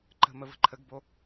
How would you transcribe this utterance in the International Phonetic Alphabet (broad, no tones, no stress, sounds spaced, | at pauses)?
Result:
ǃ ə̤ m ə v ə̤ ǃʰ ə ɡ b o